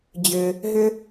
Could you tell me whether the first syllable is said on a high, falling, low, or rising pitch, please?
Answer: low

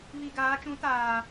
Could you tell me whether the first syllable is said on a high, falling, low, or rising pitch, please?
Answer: low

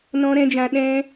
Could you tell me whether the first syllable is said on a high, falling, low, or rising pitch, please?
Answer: high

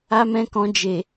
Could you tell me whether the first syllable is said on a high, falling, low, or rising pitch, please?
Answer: high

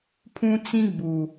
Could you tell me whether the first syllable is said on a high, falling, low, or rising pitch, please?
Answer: high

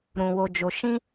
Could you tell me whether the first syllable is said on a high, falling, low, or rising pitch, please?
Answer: low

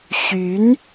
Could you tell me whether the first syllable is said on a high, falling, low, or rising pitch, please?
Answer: rising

